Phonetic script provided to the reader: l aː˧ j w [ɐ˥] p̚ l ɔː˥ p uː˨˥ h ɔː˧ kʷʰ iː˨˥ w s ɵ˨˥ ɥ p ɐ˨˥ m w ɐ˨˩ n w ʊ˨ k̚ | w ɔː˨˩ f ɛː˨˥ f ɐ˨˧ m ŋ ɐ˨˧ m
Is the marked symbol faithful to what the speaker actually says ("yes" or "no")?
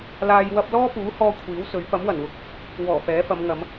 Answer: yes